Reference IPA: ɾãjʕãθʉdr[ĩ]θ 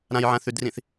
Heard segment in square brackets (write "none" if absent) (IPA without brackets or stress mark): ĩ